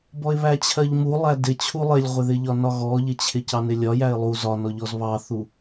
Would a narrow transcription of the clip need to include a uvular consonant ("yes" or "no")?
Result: yes